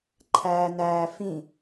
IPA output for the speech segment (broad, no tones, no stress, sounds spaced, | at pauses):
ǃʰ æː n æː f ĩ